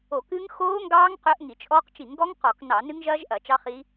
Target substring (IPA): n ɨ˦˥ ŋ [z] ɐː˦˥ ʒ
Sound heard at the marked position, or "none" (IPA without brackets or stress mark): ʒ